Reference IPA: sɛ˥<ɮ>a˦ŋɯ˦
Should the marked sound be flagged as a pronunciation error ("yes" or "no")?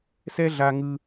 no